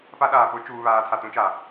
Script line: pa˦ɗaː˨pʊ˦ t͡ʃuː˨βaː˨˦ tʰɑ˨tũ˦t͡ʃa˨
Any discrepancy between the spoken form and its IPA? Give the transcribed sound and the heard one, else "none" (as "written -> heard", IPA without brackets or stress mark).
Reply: ɑ˨ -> a˨